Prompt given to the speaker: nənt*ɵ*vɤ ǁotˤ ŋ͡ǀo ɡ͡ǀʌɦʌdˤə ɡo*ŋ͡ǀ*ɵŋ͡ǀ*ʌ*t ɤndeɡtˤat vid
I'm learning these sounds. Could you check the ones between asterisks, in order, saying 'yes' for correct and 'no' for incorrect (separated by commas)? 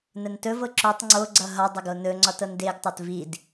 yes, no, no